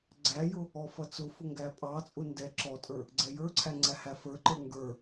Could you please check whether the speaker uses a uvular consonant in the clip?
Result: no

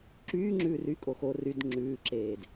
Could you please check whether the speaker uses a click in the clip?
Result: yes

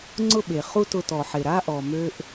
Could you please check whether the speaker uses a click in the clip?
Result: yes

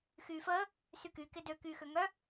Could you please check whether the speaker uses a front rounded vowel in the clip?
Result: yes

